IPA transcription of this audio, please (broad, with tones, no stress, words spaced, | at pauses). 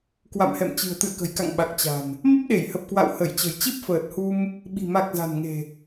kwa̰˧˨mhɛ̰˧˨m t͡ɕɨ̤˨˩ə̯t̪ɨ̰˧˨ə̯kə̤˨˩jka̰˧˨ŋ ɓa˨˩k̚t͡ɕa̤˨˩n | mə˦˥p̚ɗe˧˩jhə˨˩p̚kwa̰˧˨w hə˧˩jt͡ɕə̤˨˩j t͡ɕi˦˥p̚fəː˨˩t̚hu˧m | ɓi̤˨˩ma˨˩k̚ za̤˨˩nŋe̤˨˩